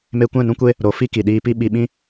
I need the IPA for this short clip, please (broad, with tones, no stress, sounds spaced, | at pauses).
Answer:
m e˧ kʷ ɛ̃˦˨ n ũ˦ kʷ e˦ | ɾ o˨ f i˦ k i˨ ɗ iː˧ p i˦ ɓ i˧ ɓ ĩ˦